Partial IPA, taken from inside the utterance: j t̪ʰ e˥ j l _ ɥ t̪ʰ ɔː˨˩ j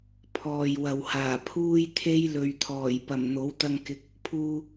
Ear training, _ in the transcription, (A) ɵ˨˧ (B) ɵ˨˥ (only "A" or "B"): A